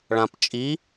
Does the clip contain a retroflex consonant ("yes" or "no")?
yes